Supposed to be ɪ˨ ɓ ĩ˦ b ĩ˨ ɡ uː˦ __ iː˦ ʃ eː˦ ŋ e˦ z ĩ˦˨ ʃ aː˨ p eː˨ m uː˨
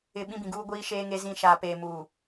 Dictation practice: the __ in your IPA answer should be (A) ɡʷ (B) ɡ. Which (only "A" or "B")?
A